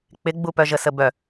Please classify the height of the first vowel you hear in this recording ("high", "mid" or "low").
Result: high